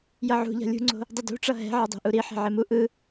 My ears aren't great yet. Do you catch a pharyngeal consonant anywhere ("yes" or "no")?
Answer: yes